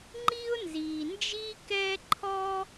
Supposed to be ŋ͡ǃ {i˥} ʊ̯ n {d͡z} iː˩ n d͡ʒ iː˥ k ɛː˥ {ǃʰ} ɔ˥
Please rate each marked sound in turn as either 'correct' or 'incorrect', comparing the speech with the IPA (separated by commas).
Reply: correct, incorrect, correct